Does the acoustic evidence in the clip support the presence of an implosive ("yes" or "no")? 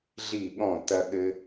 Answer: yes